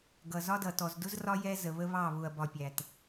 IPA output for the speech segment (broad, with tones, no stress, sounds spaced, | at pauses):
ɡ ʌ˨ z ɒ˦ d ʌ˨ t ɔ˨ z d ʊ˦ z r ɒ˦ j ɛ˦ z ə˨ β ə˦ β ɑ˦˨ β ʊ˨ ɐ̯ b ɒ˨ pʲ æ˨ t